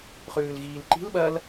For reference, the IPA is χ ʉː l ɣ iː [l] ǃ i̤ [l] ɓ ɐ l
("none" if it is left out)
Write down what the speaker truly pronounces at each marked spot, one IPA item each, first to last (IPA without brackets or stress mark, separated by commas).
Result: l, l